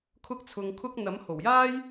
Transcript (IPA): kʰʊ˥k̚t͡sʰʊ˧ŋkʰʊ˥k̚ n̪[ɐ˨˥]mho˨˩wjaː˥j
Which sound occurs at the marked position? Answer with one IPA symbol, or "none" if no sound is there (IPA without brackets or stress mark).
ɐ˨˥